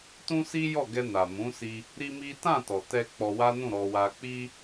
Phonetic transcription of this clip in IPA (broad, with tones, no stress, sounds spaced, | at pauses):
t ũ˦ s i˦ j ɔ˦˨ ɡ ɛ˧ n a˨ m ũ˨˦ s i˧ | ɾ i˦ m i˦ t ã˦˨ t ɔ˨ t ɛ˧ k͡p ɔ˧ w a˦ n ũ˦˨ ɾ ɔ˧ w a˧ k͡p i˦